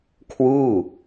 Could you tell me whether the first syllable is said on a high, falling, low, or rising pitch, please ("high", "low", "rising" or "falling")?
falling